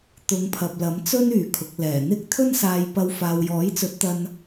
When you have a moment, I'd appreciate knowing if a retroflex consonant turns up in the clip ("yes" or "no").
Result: no